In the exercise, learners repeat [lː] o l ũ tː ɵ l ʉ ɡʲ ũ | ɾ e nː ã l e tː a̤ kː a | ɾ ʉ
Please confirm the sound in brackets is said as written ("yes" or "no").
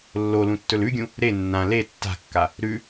yes